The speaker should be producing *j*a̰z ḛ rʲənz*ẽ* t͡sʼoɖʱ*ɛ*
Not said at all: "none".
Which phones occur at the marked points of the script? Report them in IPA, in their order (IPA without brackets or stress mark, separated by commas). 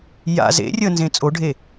j, ẽ, e